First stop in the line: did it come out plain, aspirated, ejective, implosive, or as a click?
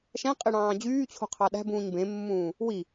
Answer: ejective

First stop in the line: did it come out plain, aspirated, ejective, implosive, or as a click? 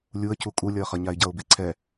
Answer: aspirated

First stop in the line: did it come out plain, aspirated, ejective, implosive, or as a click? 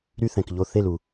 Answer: plain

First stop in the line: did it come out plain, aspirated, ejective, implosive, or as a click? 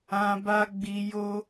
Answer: plain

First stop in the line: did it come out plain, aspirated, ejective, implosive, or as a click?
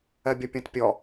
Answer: plain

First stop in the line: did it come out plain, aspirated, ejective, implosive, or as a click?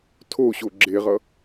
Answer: aspirated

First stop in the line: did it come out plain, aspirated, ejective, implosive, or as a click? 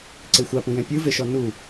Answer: click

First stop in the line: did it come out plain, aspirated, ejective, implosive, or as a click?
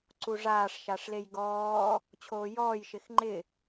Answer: click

